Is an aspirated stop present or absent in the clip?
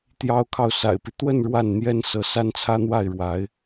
present